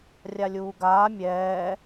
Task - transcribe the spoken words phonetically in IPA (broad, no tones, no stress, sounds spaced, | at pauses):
rʲ a lʲ uː ɡ aː mʲ ɛː